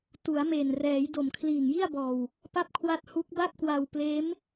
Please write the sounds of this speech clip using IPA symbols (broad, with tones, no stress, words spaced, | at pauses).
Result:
tu˩˦a̯me˨˩nrɛː˩˦j do˨˩mkʰliː˨˩ŋji˥˩a̯bɔː˨˩w | pa˥˩p̚kʰwa˥˩t̚ hu˦˥k̚ba˥˩p̚ kwa˧wpleː˦˥m